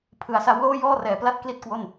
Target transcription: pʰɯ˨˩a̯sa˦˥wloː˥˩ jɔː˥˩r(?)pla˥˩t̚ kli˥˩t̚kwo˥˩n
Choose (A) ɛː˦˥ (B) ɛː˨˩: B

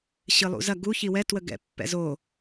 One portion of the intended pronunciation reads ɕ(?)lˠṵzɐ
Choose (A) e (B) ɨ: B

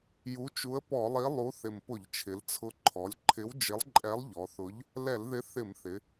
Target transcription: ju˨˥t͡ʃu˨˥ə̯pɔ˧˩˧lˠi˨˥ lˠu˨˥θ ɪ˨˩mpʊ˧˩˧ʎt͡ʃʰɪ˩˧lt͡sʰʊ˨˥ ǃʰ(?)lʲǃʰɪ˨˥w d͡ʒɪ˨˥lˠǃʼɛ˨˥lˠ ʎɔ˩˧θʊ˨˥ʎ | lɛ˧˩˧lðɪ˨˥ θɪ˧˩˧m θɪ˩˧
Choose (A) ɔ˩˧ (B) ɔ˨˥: A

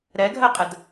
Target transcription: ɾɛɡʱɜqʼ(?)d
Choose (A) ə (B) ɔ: A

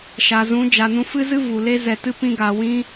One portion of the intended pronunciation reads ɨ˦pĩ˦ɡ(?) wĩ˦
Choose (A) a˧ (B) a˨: A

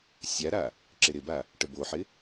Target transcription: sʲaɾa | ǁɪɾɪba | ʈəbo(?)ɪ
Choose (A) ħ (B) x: A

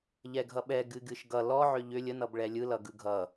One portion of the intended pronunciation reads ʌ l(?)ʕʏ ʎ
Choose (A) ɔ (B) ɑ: A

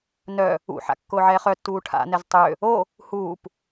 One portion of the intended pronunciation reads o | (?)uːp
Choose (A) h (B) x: A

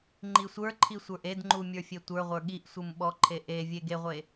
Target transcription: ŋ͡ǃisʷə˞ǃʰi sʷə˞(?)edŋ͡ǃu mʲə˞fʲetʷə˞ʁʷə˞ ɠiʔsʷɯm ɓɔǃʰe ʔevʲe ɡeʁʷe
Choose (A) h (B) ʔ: B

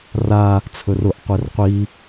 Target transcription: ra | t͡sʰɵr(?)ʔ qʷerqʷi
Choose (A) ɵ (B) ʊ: B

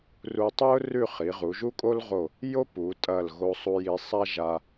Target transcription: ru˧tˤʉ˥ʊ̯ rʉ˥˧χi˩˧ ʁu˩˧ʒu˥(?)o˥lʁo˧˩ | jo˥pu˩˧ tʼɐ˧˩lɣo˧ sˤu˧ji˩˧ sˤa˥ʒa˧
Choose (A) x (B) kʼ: B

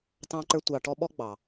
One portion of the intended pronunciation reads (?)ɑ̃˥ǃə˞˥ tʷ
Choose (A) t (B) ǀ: A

